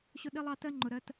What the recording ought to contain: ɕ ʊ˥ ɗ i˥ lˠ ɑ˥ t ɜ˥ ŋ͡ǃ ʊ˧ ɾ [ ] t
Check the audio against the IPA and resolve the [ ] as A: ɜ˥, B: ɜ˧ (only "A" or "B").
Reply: A